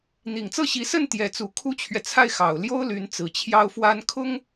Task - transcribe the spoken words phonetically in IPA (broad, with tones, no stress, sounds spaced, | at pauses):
n̪ i˨˩ ŋ t͡s ɤ˥˩ ɕ i˧˥ s ə˥˩ n t̪ j ɛ˧˥ t͡s u˧˥ kʰ u˥ t͡ɕʰ ɥ ɛ˨ t͡sʰ a˥˩ ɪ̯ x ɑ˨˩ ʊ̯ l j o˥ ʊ̯ l y˧˥ n t͡s ɹ̩˨˩ t͡ɕʰ j ɑ˥ ʊ̯ f w a˥ n kʰ ʊ˥ ŋ